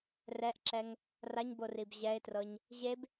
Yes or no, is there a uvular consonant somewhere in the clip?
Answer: no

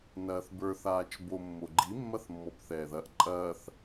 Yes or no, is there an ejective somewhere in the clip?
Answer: yes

